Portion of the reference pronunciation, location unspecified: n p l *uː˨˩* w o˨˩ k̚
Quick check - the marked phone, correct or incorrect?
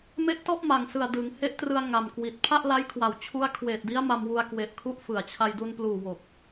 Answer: correct